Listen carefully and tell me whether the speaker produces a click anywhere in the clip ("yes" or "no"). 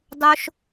no